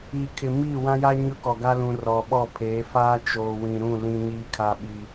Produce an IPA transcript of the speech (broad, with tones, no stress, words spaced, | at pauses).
iː˨ kʰɪ˨miː˦˨wã˦ja˦ ɲʊ˦kɔ˨ɡa˦lũ˨ rɔ˨ɓɔ˦˨pʰeː˨˦ faː˦t͡ʃoː˨wĩ˨ɾũ˦˨ lĩ˦ ɲiː˦kʰa˦ ɓiː˦